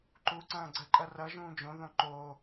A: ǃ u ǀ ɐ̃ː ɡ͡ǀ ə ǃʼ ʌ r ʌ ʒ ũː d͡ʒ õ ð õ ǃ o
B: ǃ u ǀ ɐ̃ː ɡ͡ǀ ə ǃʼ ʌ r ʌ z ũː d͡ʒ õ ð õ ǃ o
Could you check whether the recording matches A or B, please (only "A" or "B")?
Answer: A